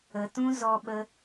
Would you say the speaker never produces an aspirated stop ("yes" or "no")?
yes